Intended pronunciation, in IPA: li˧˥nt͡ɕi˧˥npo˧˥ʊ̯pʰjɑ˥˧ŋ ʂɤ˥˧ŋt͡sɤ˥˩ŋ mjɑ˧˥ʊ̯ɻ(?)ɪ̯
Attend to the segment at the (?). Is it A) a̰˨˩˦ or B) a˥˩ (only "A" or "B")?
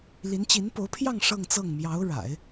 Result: A